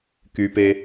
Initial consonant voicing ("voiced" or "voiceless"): voiceless